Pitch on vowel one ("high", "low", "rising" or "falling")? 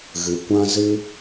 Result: low